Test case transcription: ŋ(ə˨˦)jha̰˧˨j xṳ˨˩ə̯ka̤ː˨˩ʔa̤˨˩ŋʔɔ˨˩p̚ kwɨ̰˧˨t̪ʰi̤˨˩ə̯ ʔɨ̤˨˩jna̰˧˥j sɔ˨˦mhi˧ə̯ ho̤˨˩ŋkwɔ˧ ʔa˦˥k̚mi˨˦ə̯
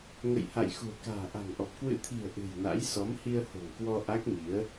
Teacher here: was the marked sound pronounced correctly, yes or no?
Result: no